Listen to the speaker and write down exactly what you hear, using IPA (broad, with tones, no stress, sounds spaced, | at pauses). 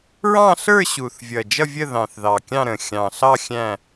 ɹ ɑ̃˥˧ ɬ ə˞˥˧ ɕ u˨˩ θ vʲ ʌ˨˩ d͡ʒ ʌ˥˧ vʲ ə˥˧ ð ɑ̃˨˩ θ ð ɑ˨˩ kʲ ɑ̃˥˧ ɾ ə̃˨˩ xʲ ɑ̃˨˩ ɬ ɑ˥˧ xʲ æ̃˥˧